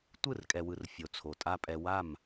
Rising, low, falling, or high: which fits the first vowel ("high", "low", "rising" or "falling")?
falling